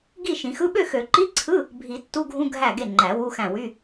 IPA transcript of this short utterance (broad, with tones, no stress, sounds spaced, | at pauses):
ɡ i˥˨ ʃ ĩ˨˩˦ x ɯ˧˥˧ ɓ ø˥˨ x ø˨˩˦ ǃ i˧˥˧ ǀʰ ɯ˧˥˧ | bʱ i˨˩˦ tː u˧˥˧ ɡʱ ũ˧˥˧ ɡʱ æ˥˨ ɡ e˥˨ ŋ͡ǃ æ˨˩˦ w u˧˥˧ x æ̃˥˨ w y˧˥˧